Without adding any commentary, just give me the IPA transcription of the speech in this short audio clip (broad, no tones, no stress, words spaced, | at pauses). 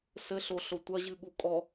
sɘɬoɬo tʷɐʑɨɠu kʼɔ